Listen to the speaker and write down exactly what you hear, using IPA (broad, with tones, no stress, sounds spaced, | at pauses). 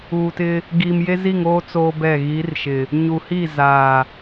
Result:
uː˨ t ɪ˦ | ɡ iː˨ m j e˦ z i˦˨ ŋ oː˦ t͡s oː˦ b ɛ˦˨ ɣ i˨˦ r ʃ ɪ˨ | ɲ u˨ h i˦˨ z aː˨